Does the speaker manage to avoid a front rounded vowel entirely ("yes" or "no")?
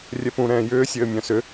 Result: no